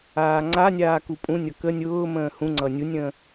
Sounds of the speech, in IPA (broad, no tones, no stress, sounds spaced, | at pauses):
aː ŋ͡ǀ a nʲ aː k u pʼ ũ nʲ ʌ k ə nʲ ʊː m ə̃ː h ũ ŋ͡ǀ ʌ nʲ u nʲ ə̃ː